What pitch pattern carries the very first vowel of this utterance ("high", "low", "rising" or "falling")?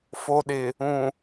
low